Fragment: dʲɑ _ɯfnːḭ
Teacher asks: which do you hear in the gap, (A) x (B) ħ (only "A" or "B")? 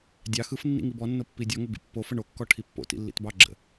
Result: A